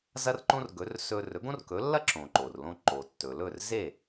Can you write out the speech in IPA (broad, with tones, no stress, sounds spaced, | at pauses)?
z ɐ˥ r ǃ õ˥ r ɡ ɵ˩˥ r s ɵ˧ r ɵ˩˥ ɡ õ˥ r k ɵ˩˥ lː ɐ˥ ǁ õ˩ ǃ o˩ r l õ˧ ǃ o˩ tː ɵ˩ l ɵ˥˩ r z e˥˩